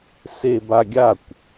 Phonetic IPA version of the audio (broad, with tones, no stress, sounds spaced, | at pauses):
s e˧ b a˧ ɡʲ a˦˨ kʷ